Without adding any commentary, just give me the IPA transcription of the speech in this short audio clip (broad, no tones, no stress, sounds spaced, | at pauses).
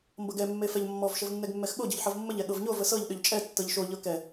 m b ɤ ɡ ɛ mː e f ɛ ʎ mː ɔ v ʃ ə v nː ɛ ɡ mː ɛ x ɠ o ɟ ɤ ʎ ħ ɤ v mː ə ʎ ɛ ɠ ɤ v ɲ o v ə s ɤ ʎ ɗ ʏ ʎ t͡ʃʼ ɛ tː ɤ ʎ ʃ o ʎ ɤ k ɛ